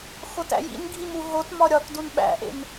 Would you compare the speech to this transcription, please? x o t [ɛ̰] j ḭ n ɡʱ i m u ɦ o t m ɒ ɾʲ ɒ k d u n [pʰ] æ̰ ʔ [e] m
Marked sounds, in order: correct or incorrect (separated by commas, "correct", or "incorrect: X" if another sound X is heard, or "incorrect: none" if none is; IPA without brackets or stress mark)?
incorrect: æ̰, incorrect: ɓ, incorrect: ḛ